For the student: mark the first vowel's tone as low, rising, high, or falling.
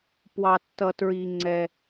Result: high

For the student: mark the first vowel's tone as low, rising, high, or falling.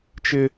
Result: high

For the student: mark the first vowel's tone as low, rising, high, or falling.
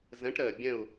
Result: rising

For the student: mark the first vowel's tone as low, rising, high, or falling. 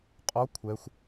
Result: rising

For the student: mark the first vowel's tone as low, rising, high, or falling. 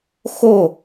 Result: falling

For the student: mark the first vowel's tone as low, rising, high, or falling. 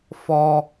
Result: high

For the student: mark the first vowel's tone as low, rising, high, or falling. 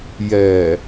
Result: low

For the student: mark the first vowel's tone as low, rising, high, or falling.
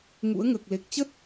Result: rising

